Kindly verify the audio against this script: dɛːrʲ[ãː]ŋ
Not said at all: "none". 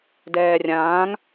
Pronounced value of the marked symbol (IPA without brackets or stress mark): ãː